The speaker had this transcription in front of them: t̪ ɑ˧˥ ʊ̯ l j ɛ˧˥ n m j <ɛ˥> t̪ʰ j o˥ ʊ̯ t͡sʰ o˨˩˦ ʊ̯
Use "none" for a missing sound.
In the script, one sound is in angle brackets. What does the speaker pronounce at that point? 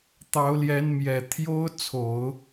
ɛ˨˩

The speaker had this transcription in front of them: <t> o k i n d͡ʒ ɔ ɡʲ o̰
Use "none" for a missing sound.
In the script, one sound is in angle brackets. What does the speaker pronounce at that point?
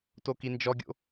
t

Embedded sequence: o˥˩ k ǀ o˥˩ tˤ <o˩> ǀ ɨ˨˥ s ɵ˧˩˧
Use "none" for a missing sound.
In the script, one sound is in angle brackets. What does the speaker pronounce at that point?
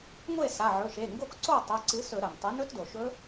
o˩˧˩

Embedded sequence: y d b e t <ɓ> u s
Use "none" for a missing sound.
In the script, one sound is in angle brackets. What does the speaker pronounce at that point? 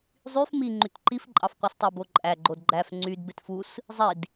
f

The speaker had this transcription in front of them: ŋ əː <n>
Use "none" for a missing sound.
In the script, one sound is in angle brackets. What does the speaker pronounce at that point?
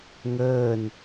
n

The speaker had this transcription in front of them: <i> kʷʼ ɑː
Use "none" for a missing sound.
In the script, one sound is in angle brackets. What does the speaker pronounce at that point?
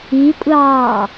i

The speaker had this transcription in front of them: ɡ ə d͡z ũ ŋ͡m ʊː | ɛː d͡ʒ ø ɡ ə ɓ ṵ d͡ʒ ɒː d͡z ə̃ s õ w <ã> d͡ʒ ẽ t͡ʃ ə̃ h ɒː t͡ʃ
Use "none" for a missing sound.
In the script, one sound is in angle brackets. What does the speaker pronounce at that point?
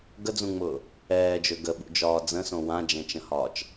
ã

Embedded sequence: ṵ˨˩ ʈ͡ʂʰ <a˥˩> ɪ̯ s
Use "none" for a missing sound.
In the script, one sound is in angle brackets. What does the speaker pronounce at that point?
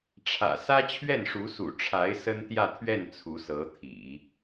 a˧˥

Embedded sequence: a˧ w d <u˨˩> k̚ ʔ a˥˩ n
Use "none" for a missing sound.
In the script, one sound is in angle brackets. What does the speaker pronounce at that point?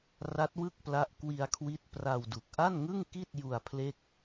u˨˩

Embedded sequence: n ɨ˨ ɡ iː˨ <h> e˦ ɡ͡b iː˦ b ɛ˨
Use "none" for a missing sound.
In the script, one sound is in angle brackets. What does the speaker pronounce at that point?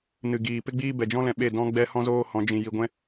p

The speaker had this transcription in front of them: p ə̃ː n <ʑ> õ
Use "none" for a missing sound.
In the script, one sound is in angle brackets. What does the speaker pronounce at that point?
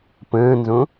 z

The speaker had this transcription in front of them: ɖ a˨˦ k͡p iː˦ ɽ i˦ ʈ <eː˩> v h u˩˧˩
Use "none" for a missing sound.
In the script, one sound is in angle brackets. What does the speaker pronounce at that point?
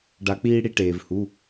eː˩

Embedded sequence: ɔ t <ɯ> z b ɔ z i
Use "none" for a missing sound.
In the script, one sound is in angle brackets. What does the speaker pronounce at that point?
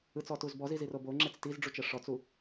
u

